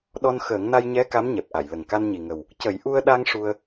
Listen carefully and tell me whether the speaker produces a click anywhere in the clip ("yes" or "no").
no